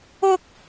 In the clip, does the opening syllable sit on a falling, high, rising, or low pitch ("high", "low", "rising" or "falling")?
high